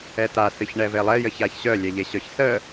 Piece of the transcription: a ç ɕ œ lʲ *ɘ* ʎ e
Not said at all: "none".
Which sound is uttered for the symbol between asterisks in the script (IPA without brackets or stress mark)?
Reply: ɛ